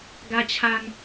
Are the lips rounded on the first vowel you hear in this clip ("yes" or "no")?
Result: no